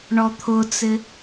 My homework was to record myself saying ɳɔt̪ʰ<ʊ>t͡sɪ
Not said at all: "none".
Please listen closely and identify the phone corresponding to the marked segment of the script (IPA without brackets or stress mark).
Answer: ʊ